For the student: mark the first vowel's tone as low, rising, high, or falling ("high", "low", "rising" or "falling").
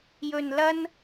low